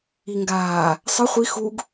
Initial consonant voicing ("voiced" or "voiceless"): voiced